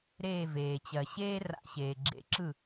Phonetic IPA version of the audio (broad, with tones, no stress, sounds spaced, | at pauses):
ɾ eː˧˩ v eː˩ t͡ɕ ɜ˩ ɕ eː˥ r a̰˧˩ ɕ eː˩ ɡ͡ǁ ḛ˨˦ ǁ ɯ˥˩